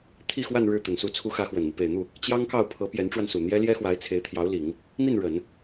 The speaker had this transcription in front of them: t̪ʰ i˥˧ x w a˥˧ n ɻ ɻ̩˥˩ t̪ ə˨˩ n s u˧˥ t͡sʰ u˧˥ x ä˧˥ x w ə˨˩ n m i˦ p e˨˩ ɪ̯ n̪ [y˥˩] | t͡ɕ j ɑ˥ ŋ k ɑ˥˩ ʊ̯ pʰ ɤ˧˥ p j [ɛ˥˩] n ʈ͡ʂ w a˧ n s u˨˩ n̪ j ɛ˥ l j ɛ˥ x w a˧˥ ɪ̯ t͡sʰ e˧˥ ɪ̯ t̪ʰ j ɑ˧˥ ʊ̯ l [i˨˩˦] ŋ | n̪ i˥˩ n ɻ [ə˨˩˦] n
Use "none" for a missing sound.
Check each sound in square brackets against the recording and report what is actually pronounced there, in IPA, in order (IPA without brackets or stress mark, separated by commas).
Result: u˥˩, ɛ˧˥, i˨˩˦, ə˨˩˦